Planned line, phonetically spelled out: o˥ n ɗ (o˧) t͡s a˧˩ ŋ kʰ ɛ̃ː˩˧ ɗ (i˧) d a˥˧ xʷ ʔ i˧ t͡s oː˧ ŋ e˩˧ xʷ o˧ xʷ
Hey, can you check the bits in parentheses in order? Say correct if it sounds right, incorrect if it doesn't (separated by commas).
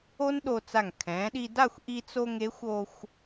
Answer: correct, correct